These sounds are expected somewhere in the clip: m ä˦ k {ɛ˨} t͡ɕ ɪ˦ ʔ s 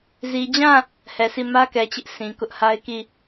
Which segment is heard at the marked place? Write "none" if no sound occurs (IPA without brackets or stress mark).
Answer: ɛ˨